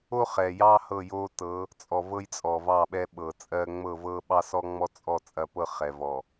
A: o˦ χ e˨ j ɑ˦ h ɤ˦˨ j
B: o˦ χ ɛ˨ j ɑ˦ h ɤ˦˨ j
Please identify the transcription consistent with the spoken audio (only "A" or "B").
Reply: B